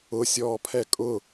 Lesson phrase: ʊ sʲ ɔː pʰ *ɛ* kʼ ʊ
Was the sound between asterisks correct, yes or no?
yes